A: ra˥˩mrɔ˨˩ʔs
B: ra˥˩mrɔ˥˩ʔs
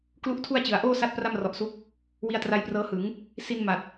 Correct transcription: A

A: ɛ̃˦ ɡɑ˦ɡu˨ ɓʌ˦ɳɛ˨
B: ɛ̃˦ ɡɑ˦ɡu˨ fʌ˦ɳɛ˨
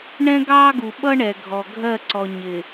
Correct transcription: A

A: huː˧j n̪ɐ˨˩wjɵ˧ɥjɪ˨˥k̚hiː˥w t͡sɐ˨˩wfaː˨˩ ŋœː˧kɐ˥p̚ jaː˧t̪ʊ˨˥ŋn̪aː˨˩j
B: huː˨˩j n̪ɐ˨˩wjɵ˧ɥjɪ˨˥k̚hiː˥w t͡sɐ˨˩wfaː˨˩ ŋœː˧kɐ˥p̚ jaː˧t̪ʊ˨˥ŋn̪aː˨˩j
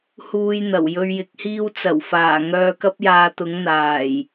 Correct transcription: A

